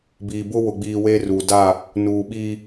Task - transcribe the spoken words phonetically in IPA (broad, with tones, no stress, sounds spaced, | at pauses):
b iː˨ b ʊ˦ w ʊ˨ ɡ͡b iː˨ w e˦ r u˨ d a˦˨ | n uː˨ ɓ iː˦